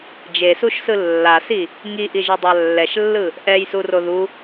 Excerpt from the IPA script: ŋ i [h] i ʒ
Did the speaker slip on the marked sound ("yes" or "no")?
yes